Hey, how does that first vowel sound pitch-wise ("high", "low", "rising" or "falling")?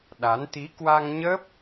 rising